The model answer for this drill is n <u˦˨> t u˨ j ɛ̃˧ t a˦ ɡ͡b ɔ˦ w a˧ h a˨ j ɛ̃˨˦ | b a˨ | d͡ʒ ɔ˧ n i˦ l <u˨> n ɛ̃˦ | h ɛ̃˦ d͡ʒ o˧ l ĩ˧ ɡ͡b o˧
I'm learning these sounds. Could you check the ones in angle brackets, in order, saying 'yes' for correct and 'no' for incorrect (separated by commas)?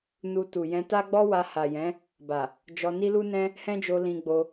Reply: no, no